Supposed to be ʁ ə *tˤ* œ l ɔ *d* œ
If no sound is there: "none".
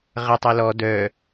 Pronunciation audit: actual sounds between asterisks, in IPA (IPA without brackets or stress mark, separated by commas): tˤ, d